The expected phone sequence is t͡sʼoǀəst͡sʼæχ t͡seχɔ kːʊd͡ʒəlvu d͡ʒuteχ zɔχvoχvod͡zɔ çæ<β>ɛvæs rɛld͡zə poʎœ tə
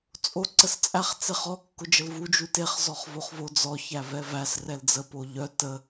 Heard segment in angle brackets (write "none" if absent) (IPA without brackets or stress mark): v